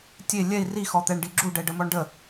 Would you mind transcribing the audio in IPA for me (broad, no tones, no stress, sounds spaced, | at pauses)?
tʲ e lʲ ɛ i̯ r i x ɔ t̪ ɛ ɳ ɖ i ɡ͡ǁ u ɖ ɛ ɖ ə m ɔ ɳ ɖ ə